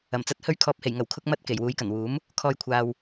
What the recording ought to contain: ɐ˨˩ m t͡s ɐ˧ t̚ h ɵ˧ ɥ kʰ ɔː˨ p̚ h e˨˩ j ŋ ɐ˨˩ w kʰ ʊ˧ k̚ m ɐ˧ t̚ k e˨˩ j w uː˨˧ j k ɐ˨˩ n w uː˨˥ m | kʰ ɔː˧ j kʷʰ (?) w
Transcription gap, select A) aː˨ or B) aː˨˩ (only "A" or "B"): A